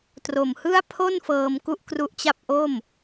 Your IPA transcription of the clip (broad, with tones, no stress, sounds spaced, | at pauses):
t r o˨˩ m h ɯ˥˩ a̯ pʰ o˥˩ n f ɤː˧ m k u˥˩ ʔ k r u˦˥ ʔ t͡ɕ a˥˩ p̚ ʔ o˥˩ m